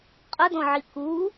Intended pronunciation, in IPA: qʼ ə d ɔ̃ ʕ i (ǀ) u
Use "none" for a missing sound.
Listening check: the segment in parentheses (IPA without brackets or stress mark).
k